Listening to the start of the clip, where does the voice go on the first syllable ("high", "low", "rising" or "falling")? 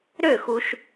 falling